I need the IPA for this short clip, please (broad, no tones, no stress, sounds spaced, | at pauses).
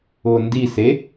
ʊː n d i s e